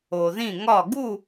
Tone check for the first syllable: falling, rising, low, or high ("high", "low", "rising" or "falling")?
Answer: low